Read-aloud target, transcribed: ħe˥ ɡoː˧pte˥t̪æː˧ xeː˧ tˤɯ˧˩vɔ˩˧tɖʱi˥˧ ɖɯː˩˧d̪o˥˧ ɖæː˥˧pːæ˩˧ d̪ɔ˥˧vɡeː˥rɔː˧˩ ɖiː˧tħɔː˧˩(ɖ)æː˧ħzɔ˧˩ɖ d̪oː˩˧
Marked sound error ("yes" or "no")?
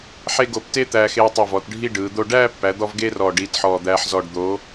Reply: yes